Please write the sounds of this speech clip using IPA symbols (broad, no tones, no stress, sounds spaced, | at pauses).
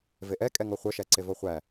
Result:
v e ʔ ɛ kʼ ɛ ŋ ɔ χʷ œ ʃ æ ǀ e v ɔ χʷ æ